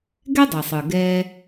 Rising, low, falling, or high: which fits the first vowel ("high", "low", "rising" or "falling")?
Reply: high